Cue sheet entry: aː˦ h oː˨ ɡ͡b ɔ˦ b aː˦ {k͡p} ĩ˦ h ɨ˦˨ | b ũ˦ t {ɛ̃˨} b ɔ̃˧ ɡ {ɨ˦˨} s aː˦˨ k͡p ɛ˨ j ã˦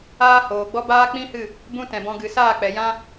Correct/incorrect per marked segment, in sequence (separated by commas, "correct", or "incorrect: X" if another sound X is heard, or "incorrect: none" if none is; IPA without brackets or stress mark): correct, correct, incorrect: ɨ˨